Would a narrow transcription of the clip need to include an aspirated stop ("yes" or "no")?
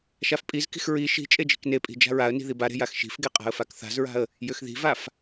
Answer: no